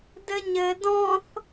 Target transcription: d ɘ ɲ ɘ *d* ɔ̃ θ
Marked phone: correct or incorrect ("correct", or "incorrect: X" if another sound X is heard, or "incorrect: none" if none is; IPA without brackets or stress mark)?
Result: correct